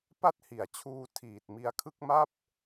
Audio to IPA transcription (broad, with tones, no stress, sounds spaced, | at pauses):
p a˥˩ t̚ h i˨˩ a̯ t͡ɕʰ uː˧ tʰ iː˨˩ t̚ m i˧ a̯ kʰ ɯ˥˩ k̚ m a˥˩ p̚